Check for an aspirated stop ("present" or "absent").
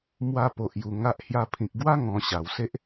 present